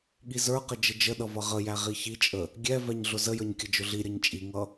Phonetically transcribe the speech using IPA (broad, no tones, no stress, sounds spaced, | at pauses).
ɠ i z ə˞ q ə d͡ʒ ə d͡ʒ ə ɗ ʌ v ʌ ʁ ə j æ ʁ i ç i t͡ʃʼ ə | ɡʲ ɛ v ɛ ɲ ɮ ʊ z ə j ə˞ ɲ kʲ ə d͡ʒ ʊ ɮ i ɾʲ ʌ ɲ t͡ʃʼ i ŋ ʌ